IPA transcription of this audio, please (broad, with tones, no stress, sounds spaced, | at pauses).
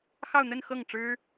x ɑ˥˧ ʊ̯ n̪ ə˥˧ n x ɤ˥˩ ŋ ʈ͡ʂ ɻ̩˥